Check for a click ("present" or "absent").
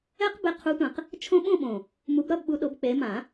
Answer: absent